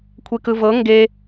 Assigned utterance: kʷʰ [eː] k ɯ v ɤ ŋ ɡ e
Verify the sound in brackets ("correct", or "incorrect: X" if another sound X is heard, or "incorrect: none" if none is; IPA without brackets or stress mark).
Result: incorrect: e